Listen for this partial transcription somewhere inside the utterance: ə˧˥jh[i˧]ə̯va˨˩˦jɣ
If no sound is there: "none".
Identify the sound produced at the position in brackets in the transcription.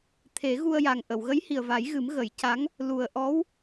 i˨˩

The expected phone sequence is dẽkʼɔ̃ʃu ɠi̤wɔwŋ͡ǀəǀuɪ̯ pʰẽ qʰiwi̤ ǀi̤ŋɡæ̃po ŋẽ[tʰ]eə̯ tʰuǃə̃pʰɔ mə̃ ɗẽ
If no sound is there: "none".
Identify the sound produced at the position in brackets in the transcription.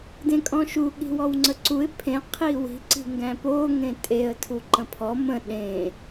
tʼ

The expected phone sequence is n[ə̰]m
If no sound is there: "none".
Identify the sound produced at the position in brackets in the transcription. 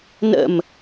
ə̰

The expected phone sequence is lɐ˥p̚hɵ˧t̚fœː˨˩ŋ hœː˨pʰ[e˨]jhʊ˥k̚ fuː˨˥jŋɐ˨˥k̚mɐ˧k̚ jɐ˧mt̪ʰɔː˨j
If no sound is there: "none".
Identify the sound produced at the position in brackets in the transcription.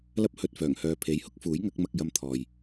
e˨˥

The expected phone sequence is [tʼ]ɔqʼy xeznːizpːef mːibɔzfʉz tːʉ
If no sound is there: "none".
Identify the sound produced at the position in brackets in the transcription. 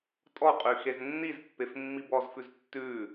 tʼ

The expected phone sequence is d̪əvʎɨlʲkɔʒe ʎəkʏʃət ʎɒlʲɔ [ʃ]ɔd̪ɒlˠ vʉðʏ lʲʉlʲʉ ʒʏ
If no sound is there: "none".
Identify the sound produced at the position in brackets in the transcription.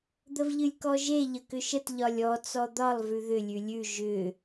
t͡s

